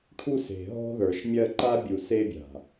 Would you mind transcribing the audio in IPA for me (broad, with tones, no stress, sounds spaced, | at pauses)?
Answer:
ʈʰ u˦ s e̤˨ ɦ ɔ̤˦ ð ə˞˨ ʃ mʲ ɜ˦ ǃ a˦ bʲ u˨ s e˦ bʲ a̤˨